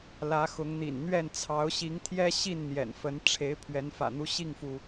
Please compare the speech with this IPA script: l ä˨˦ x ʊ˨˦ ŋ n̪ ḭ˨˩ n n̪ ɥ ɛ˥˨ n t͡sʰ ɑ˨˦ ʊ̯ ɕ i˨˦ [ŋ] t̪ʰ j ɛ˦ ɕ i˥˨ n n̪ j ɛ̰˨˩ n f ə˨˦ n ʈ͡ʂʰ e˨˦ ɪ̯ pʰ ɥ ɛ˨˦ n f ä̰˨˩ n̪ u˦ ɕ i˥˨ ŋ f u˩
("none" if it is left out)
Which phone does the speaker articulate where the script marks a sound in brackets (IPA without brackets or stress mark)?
ŋ